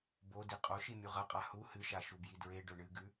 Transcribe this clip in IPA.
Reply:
b o d i qʼ o ʃ i mʲ u ʁ ɐ qʼ a h u h ɨ ʃ a ʃ u b j i d ɹ e ɖ ɵ ɳ ɨ ɡ ʉ

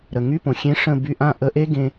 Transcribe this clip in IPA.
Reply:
ɾ ə˩ ŋ y˧˥˧ p õ˩ xʲ ẽ˦˥ ʂ ə̃˥˨ b y˧ ʔ ã˥˨ ʔ ə˧˩˧ ʔ e˦˥ ɡ ẽ˧

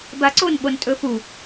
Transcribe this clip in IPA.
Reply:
b a ǀ o n ɓ o n tʼ ɵ f u

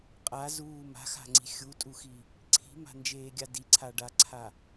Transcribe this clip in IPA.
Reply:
qʼ a z uː m a̤ x a̤ ŋ͡ǀ i̤ xʲ u tʼ u x i | ǀʰ i̤ m a̤ n d͡ʒ eː ɡʲ a d i ǀʰ a ɖ a ǀʰ a

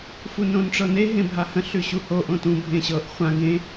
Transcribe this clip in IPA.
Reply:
f u n õ n ʈ͡ʂ ɤ n e ɦ ẽ bʱ a h ə̃ ɬ ʉ ɕ u h o ʔ õ t ũ bʱ ẽ ɕ ɤ ʔ χʷ ã ɡ ẽ

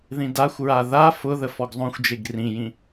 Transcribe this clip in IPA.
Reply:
ð ĩ d a xʷ ɹ a ð a f ʊ ð ə f ɔ ɡ zˤ õ xʷ d͡ʒ e ɡ r ĩ j ĩ

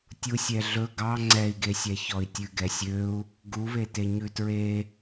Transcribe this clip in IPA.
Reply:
tʲ u sʲ ɛ ɮ ɵ ɡ ɑ ŋ͡ǀ ɛ i̯ ɡ e sʲ ɛ ç ɔ i̯ tʲ ʉ ɡ ɛ sʲ ø u̯ | ɡ u β e t e ɲ ʉ t ɹ e

